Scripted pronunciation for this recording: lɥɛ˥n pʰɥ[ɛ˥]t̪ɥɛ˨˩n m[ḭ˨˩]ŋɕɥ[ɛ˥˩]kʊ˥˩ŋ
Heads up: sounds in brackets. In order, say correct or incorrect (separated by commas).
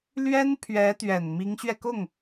incorrect, incorrect, incorrect